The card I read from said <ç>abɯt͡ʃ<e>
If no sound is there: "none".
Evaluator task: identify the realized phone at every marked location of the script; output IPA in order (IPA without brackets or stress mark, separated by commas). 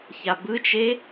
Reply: ç, e